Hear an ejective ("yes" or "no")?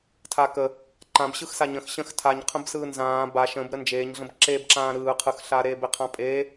yes